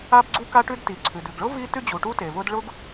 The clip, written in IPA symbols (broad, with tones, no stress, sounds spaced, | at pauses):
a˥ b ɡ͡ǀ u˥ k a˥ ʈ ʉ˥ d t i˩ ǀʰ ʉ˩ d ʉ˩ ɡ ɭ ʊ˥ v i˥ t ʉ˥ d͡ʑ u˩ ʈ u˥ t e˩ v ʊ˥ d ɭ ʊ˥ ɡ